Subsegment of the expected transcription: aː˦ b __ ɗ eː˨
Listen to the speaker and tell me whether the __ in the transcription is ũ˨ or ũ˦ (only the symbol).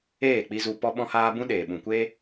ũ˦